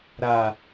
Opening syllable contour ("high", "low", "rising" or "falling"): low